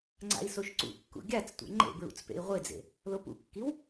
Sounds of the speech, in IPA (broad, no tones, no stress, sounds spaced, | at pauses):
ŋ͡ǀ a̰ i̯ s o ʃ ǀ ṵ kː ṵ ɡʲ a t͡s tʷ ɛ̰ ŋ͡ǃ ḛ b ɹ ṵ t͡s p ḛ i̯ ʁʷ e d͡z ḛ | l o p ṵ kː i w